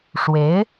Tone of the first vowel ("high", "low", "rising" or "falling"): rising